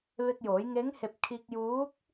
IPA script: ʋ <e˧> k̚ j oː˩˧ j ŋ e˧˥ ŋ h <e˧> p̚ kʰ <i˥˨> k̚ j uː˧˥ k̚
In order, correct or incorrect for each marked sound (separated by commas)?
correct, correct, incorrect